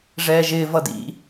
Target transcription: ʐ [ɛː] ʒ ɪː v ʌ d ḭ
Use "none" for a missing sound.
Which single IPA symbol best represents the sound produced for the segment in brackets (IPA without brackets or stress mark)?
ɛː